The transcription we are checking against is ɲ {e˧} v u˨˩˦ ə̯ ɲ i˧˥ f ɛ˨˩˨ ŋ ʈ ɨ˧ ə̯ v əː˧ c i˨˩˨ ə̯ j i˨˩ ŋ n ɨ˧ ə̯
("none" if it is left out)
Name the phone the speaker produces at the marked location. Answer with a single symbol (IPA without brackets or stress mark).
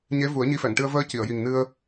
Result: e˧˥